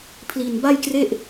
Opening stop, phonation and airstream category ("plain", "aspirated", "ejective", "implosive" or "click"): aspirated